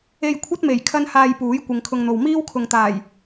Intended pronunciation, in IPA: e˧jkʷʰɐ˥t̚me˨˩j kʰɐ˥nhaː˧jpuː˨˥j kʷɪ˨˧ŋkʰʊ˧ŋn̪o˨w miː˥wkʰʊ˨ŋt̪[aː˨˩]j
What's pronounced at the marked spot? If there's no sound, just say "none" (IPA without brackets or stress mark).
aː˨˩